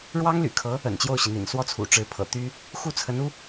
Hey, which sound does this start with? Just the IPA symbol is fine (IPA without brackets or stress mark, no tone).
ɻ